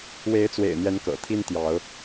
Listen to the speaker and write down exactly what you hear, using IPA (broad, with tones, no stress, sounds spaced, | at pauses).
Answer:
w e˨˦ ɪ̯ t͡s w ḛ˨˩ ɪ̯ n̪ j ɛ˨˦ n k ɤ̰˨˩ t̪ʰ i˦ n t̪ j ɑ˨˦ ʊ̯